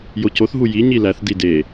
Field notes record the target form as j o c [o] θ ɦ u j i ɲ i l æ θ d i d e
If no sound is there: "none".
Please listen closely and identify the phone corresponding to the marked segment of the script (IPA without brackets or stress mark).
o